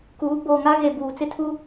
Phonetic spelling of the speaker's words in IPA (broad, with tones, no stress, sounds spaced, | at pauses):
k uː˨˦ ɡ͡b oː˨ ŋ a˦ ɣ e˨ b uː˨ t͡s ɪ˦ tʰ u˦